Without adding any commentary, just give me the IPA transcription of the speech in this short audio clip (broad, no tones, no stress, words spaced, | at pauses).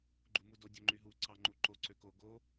ɡ͡ǃumudo dʲoŋ͡ǃyɦu ǀɑŋ͡ǃuǃo ǀøko ɡo